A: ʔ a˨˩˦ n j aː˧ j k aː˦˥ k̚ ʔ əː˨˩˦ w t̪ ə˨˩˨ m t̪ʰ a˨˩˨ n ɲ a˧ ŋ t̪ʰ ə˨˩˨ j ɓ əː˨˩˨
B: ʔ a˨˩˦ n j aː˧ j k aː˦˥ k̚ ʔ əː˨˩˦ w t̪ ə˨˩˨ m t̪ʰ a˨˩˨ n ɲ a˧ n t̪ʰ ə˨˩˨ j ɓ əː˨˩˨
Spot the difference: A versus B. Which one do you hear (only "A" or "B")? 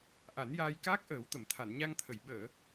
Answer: A